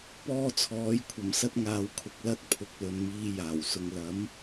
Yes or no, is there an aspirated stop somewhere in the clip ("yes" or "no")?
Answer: yes